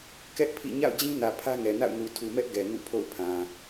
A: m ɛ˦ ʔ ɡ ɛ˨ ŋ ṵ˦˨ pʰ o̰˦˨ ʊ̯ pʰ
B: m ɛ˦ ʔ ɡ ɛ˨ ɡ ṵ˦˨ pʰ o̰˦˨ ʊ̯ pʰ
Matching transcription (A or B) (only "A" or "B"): A